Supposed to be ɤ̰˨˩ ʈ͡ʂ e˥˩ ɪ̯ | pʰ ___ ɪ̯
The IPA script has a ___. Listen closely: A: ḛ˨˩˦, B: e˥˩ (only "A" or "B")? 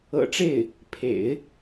A